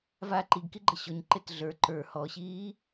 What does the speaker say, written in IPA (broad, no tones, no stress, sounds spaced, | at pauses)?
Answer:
v a ǃ i ɡ k i ɡ͡ǃ ʌ ɕ ɔ ɲ ǃ e t ɮ ə˞ ǃ ə˞ h ɔ ɕ iː